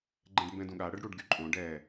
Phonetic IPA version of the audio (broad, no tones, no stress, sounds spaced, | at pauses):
ɡ͡ǃ ɛ̃ ɖ m b ɛ̃ d ũ ɠ a ɽ ə ɖ ɽ u ɖ ɡ y ǃʼ õ ɖ ɛ